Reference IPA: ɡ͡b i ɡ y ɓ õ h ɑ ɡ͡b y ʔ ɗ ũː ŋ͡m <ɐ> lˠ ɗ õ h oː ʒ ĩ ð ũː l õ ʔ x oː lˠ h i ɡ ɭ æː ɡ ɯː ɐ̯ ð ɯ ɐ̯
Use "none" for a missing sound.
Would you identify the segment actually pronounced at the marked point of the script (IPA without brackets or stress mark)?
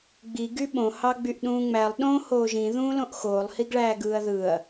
æ